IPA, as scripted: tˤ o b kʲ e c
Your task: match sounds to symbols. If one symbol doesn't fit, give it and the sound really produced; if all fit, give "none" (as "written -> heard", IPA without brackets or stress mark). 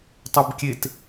c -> t